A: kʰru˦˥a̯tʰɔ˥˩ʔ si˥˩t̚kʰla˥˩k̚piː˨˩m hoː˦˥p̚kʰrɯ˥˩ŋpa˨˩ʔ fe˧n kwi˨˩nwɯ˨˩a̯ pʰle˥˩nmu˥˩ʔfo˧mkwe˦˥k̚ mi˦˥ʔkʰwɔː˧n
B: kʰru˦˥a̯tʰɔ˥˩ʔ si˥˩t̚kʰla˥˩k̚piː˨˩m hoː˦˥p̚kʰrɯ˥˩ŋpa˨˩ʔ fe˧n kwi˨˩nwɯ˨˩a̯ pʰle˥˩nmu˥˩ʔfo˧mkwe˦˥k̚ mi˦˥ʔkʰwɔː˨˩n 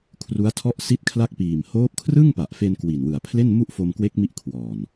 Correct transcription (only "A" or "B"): B